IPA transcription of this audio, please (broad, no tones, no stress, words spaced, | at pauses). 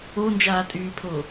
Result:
ond͡ʒaːtʼyːpʰo